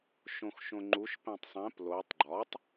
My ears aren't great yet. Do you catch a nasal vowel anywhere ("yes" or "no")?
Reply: yes